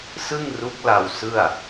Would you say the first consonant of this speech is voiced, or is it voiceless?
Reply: voiceless